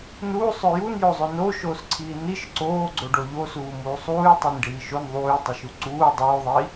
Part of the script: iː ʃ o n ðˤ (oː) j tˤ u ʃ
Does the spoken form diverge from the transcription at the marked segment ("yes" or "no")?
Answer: yes